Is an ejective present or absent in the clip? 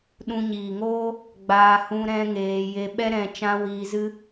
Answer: absent